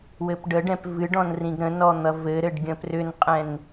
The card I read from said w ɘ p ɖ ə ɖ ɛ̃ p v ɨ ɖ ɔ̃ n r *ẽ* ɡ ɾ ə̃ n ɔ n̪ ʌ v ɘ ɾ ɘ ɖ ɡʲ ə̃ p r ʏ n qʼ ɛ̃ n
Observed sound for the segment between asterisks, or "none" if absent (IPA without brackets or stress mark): ĩ